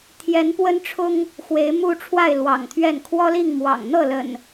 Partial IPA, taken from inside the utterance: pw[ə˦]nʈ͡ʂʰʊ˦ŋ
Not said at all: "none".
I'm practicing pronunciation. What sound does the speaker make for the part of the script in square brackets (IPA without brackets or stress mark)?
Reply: ə˦